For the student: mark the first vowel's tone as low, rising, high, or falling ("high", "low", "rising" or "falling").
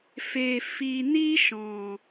low